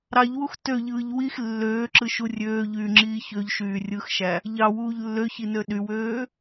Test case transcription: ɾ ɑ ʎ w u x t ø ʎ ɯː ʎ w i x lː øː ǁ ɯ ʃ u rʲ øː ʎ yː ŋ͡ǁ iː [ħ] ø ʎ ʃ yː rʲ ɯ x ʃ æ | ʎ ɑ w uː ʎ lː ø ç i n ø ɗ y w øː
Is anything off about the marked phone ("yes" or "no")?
yes